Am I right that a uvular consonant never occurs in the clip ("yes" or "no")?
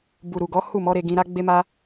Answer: yes